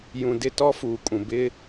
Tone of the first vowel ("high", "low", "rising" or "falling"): low